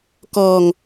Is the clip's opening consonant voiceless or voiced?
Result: voiceless